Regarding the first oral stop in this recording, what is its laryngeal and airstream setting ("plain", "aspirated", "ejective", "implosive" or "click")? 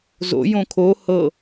aspirated